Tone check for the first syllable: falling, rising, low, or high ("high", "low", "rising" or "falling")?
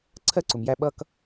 high